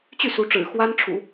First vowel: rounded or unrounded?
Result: rounded